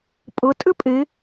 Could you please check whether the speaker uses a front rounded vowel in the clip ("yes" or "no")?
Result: yes